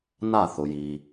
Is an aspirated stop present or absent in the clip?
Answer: absent